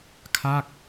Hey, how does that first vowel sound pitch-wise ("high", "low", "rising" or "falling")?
falling